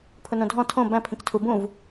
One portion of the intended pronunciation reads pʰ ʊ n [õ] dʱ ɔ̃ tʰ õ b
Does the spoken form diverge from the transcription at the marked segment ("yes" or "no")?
no